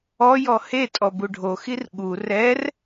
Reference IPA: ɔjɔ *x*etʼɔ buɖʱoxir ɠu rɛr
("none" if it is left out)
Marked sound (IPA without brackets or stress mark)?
h